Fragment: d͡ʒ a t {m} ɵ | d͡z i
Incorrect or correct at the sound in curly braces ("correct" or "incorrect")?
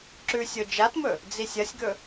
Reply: correct